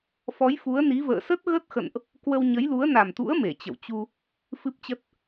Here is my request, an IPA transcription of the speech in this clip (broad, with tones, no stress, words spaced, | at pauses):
fɔ˨˦jfu˨˦ə̯ni˨˦və̰ː˧˨ sə˦˥t̚ɣə˦˥t̚xə̰˧˨nʔ | kwə˧wɲə˨˦jlu˨˦ə̯ na˨˩mt̪ṵ˧˥ə̯ me˧˩t͡ɕə̰˧˨w t͡ɕu˧ | fɨ˦˥p̚t͡ɕə˦˥t̚